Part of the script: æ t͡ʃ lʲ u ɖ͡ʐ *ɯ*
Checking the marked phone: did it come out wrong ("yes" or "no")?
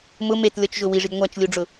yes